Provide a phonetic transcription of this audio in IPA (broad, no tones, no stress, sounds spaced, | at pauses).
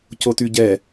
c o t y ɟ ɛ